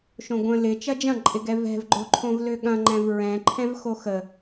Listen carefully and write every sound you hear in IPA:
ʃ õ ɡʷ ə̃ l ɪ t͡ʃ ɐ d͡ʒ ɐ̃ ǃʼ ɪ ɡ ɛ v ɛ̤ v ɡ͡ǃ o ǃʰ õ v l ø ɠ ɐ̃ ŋ͡ǃ ɛ̃ v ɹ ɛ̃ ǃʰ ɛ̃ v x o x ə

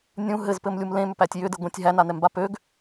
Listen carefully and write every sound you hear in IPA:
nʲ ũ ɦ ɘ z p ɘ m lʲ u m l ẽ m ʏ p æ tʲ j ʏ d ɘ ɡʷ ẽ tʲ ɦ æ n a n ɛ m b a p ø ɡ

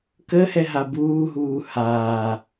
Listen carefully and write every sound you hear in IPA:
k ə h ɛ ɦ a b uː ɦ uː h aː

